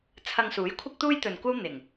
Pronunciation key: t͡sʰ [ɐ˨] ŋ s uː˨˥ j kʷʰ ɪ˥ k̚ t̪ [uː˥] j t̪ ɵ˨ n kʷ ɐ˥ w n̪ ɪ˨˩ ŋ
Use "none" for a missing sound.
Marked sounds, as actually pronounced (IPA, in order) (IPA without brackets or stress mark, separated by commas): ɐ˧, uː˥